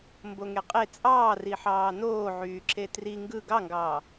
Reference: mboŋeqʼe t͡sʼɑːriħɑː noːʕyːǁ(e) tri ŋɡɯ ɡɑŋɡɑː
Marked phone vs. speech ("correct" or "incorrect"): correct